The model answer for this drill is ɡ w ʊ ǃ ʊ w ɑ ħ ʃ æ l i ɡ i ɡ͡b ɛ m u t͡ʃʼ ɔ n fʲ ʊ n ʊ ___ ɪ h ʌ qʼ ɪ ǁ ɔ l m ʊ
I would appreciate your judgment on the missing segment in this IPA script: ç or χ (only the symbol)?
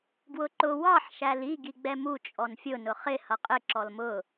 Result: χ